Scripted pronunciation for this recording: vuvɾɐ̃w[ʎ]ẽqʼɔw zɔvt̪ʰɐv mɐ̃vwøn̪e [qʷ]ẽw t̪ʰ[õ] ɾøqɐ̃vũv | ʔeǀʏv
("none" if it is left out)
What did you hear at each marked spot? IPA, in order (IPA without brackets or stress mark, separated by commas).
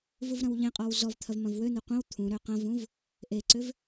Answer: ʎ, qʷ, ũ